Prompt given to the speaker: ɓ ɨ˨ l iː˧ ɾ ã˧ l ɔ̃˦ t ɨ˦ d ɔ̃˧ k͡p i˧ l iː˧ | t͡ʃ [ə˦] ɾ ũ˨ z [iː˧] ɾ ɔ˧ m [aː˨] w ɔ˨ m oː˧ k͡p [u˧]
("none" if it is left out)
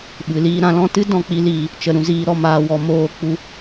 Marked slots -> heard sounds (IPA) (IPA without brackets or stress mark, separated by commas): ə˨, iː˧, aː˨, u˧